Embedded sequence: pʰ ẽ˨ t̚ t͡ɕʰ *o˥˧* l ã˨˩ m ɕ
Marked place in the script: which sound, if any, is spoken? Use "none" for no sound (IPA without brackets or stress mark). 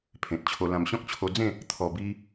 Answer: o˧